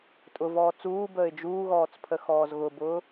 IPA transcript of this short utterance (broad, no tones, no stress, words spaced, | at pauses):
tʼʊ vɔːt͡suːbəːɪ̯ d͡ʒuːɣɔːt͡s pʰəxɔːzɣʊbʊː